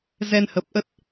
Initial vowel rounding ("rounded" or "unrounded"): unrounded